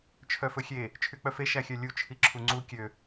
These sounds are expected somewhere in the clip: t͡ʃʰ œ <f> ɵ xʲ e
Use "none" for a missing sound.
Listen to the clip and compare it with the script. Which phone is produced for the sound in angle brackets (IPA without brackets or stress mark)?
f